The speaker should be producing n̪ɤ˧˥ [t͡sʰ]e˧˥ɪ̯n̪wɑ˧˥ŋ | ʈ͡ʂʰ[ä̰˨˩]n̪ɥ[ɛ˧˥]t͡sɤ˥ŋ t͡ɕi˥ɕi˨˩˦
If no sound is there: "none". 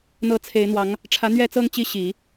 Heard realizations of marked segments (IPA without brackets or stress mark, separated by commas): t͡sʰ, ä˧˥, ɛ˥˩